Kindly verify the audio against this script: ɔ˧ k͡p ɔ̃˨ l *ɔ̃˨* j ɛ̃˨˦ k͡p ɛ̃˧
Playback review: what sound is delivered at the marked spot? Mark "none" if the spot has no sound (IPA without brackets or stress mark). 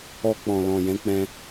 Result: ɔ̃˨